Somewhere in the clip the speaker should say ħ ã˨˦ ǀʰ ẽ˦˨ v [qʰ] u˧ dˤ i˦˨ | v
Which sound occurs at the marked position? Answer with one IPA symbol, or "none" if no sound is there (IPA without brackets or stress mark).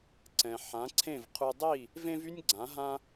qʰ